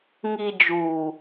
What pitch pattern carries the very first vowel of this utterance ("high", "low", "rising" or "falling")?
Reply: low